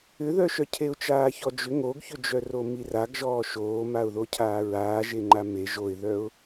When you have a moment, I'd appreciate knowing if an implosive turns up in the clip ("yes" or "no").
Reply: no